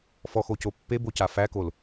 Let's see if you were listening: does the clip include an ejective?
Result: no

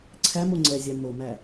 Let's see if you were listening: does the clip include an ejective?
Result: no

